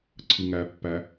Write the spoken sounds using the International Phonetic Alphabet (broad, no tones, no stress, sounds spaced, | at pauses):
ǀʰ ɯ ŋ æ pː æ